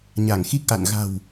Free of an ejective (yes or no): yes